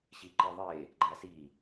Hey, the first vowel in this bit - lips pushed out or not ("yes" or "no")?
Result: no